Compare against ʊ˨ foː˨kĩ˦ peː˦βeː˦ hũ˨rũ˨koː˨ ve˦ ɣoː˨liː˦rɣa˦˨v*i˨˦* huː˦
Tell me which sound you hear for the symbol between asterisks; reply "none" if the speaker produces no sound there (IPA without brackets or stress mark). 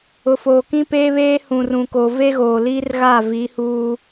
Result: i˨˦